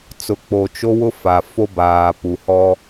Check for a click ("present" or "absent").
absent